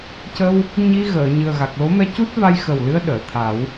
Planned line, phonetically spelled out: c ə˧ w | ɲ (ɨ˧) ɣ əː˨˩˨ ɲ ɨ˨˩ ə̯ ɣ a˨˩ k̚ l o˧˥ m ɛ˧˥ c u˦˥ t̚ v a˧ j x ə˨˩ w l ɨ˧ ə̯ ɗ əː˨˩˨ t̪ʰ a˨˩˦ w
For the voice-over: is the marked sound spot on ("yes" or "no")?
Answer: no